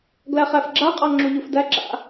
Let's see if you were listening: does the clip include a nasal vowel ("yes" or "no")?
no